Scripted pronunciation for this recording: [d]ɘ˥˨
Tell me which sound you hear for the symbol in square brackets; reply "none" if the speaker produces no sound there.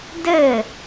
d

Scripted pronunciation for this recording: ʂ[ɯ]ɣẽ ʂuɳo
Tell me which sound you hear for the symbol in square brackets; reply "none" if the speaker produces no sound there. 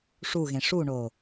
u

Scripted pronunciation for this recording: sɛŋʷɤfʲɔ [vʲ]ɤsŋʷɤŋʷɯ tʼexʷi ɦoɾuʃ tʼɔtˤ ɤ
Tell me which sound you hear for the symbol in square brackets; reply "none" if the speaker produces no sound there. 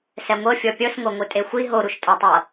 pʲ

